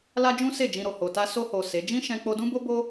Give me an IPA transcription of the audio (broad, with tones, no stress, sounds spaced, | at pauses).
l a˦ d͡ʒ ũ˦ s e˦˨ d͡ʒ ĩ˧ ɾ o˨ h o˨ t a˧ s o˧ h o˨ s e˨˦ d͡ʒ ĩ˦ ʃ ɛ̃˧ k͡p o˧ d ũ˦ b o˦ b o˦